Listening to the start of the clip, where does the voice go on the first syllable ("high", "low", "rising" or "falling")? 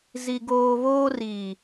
high